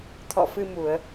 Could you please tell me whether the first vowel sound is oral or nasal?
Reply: oral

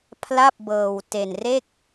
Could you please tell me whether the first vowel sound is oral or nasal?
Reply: oral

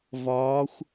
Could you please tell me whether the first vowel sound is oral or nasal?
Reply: oral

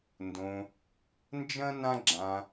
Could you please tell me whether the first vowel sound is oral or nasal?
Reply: nasal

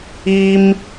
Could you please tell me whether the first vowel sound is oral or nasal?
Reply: oral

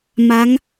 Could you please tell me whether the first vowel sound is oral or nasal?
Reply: oral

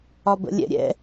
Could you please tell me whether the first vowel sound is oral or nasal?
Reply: oral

